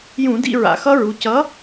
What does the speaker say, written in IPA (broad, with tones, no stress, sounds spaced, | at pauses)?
j ũ˧˩˧ d ḭ˦˨ ɹ a̰˩˧ x ʌ˦˥ ɹ u˩˧ c ʌ˨˥